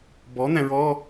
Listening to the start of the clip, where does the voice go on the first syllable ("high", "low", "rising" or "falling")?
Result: rising